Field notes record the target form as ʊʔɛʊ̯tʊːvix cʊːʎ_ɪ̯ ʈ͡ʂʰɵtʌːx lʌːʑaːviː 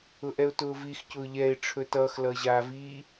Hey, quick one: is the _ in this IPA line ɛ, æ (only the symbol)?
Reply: ɛ